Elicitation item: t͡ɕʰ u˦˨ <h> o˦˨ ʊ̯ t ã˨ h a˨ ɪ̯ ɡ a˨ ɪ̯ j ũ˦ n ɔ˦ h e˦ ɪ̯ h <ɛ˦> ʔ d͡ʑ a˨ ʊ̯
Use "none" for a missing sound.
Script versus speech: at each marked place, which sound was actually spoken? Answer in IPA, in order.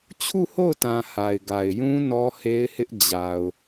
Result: h, ɪ˦

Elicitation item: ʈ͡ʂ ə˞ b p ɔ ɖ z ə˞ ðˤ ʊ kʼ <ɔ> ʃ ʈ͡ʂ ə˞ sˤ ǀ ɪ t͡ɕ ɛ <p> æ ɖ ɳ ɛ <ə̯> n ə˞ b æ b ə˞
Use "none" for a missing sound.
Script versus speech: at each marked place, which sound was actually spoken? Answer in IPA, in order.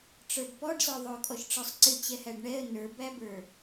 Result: ɔ, h, ə̯

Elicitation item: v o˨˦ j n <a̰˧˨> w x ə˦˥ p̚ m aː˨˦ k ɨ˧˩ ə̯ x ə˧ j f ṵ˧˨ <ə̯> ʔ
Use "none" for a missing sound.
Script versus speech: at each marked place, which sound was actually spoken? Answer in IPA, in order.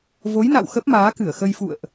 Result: a̰˧˨, ə̯

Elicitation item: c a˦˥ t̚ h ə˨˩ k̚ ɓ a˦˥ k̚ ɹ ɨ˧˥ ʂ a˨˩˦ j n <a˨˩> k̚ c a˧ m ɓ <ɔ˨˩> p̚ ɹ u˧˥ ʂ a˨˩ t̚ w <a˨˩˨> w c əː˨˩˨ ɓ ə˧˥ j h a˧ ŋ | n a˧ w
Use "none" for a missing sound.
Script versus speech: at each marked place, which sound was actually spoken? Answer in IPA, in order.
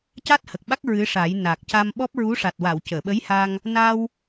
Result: a˨˩, ɔ˦˥, a˨˩˨

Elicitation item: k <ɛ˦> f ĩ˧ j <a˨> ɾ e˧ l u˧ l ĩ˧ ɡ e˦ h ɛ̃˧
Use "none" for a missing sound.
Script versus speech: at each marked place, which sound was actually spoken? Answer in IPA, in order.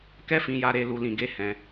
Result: ɛ˦, a˧

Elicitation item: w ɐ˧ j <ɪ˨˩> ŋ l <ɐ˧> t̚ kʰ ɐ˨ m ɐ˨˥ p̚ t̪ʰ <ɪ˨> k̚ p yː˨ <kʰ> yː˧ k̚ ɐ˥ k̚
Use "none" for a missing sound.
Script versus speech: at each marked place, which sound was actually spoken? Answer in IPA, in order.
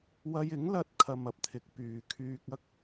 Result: ɪ˨˥, ɐ˧, ɪ˨˥, kʰ

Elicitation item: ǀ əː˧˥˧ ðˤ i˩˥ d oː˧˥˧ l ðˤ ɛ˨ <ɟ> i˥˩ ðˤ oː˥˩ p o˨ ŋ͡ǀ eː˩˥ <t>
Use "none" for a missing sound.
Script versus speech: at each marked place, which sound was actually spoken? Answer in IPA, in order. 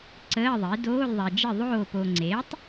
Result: d͡ʒ, tˤ

